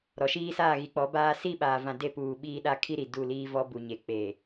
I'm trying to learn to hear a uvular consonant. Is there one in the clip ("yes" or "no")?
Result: no